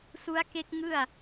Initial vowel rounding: rounded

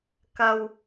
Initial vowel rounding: unrounded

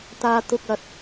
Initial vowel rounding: unrounded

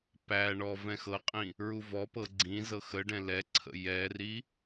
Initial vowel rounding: unrounded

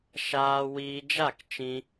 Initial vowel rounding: unrounded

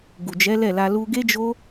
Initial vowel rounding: rounded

